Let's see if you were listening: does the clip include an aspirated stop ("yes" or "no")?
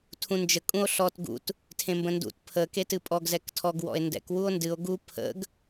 yes